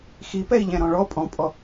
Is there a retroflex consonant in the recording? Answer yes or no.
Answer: yes